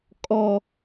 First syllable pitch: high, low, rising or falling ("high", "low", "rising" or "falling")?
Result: high